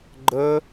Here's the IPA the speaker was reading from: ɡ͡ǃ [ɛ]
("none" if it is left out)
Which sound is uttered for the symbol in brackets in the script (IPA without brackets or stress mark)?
ə